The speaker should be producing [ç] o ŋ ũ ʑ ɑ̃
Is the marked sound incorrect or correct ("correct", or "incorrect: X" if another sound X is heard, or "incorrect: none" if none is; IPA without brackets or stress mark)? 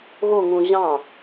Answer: incorrect: ɣ